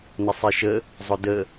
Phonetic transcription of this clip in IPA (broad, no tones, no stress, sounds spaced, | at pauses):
n ə sˤ i ʃ ə | zˤ ʊ d ə